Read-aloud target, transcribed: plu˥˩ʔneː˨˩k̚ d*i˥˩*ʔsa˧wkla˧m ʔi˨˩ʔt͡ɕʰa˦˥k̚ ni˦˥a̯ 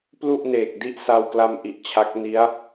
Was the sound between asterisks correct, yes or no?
no